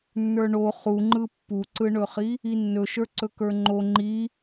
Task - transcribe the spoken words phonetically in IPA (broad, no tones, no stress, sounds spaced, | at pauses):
nː ə˞ ɳ o χ u ŋ͡ǃ ɯ pː u ǀ ɯ ɳ ɵ χ i | i nː ɵ ʃ ə˞ ǀ ɵ k ə˞ ŋ͡ǃ o ŋ͡ǃ i